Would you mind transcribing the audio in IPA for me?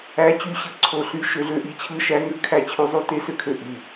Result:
æ˦˥ t͡ɕ y˥˩ ɕ ɯ˦˥ ǀʰ o˦˥ ɬ y˦˥ ʃ ø˦˥ ɮ ø˦˥ ʔ i˦˥ t͡ɕʰ ɯ˦˥ ʃ æ˦˥ ŋ ø˦˥ kʰ æ˥˩ t͡ɕʰ y˦˥ zˤ y˦˥ t e˦˥ s ø˥˩ kʰ ø˥˩ ʔ y˥˩

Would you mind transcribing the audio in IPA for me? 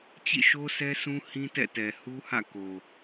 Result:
t͡ɕ ḭ˦˨ ʃ o˦ sʰ ɛ˦ s ũ˦ h ĩ˦ t ɛ̰˦˨ t ɛ˨ h u˦ h ä̰˦˨ k o˨

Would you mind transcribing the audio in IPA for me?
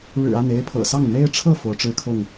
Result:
ɻ ɻ̩˨˩ a˥˨ n e˥˨ ɪ̯ pʰ ɤ̰˨˩ s ɑ˥˨ ŋ n̪ e˦ ɪ̯ ʈ͡ʂʰ ɤ˥˨ f o˨˦ ʊ̯ ʈ͡ʂ ɻ̩˦ kʰ ʊ˥˨ ŋ

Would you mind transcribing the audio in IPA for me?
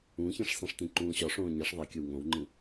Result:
ũ ç ẽ ʂ sˤ ĩ ʂ t ĩ ǃ ũː ɕ ɒ ʂ õː ɲ e ʂ ðˤ e kʲ o w ŋ õ w ŋ͡ǃ ĩ

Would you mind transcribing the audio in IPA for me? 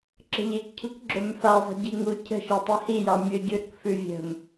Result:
ǁ ə̤ ʎ e k cʰ ṳ k ɡ͡ǁ ɵ m f a zˤ ɛ̤ ɟ i ŋ u cʰ ə̤ ʃ ɤ tˤ i h i j ɑ mʲ ɵ ɟ ʉ ɾ ə̤ k f ʉ vʲ ə̤ m

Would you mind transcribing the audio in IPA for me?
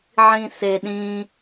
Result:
ʕ ĩ s e ɗ ĩ

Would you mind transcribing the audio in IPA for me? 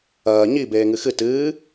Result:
ɐː ɲ i b eː ŋ ɨ x ɨ t ɨː

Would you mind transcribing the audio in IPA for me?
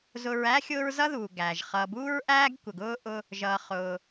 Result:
z ʊ˨ ɹ æ˥ xʲ ʊː˦ ɹ z ʌ˥ ð uː˩ ɡ æː˩ ʒ χ ʌː˨ b uː˥ ɹ ʔ æː˥ ɡ kʷ ə˨ ɡ ʊː˥ ʔ ʊ˦ | ʒ ʌː˩ χ ʊː˩

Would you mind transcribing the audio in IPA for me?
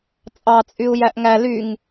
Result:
t͡sʼ ɑ t͡sʼ y u̯ j æ ʔ ŋ æ l y ŋ

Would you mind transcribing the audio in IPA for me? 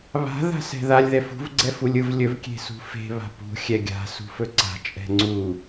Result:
β a̤ ð a̤ s ɛ̤ ð a lʲ ð ɛ f ṳ v ɡ͡ǀ ɛ f u lʲ ɯ v lʲ ɵ v kʲ e̤ s ṳ f e̤ β a̤ p ṳ xʲ ɛ ɡʲ a̤ s ṳ f ɵ ǀ a̤ t͡ʃʼ ɛ̤ ŋ͡ǀ u

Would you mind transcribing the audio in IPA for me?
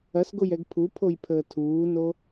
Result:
ɐ s ɡ o j ɛ ɡ pʰ u pʰ o j pʰ əː tʰ uː n o

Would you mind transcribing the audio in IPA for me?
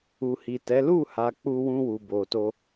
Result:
u˨ h i˨ t ɛ˨˦ l u˦˨ h a˨ k͡p u˧ w ũ˧ w u˨ b o˨ t o˧

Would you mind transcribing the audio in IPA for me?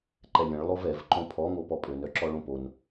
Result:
ǃ ɛ lʲ ə̃ ɭ lˠ o v ɛ v ǃ õ pʰ ɔ ŋ o p ɔ pʼ ø n œ ǁ ɔ ɭ õ p o n

